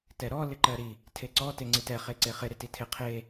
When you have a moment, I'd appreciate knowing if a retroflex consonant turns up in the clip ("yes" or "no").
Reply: no